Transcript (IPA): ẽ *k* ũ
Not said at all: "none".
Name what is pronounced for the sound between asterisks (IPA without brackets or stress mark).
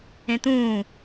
t̪